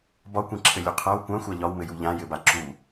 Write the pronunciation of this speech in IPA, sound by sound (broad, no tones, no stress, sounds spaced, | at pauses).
b ɒ kʷ ẽ ǁʰ ɘ lʲ u qʰ a w kʷ ã xʷ a ʎ ɒ w m ɘ j u ʎ ã j ɘ b a ǁ u